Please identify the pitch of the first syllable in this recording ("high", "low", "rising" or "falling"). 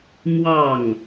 falling